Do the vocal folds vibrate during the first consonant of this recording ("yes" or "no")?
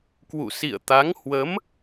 no